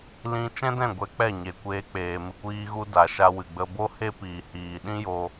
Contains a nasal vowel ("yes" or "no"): yes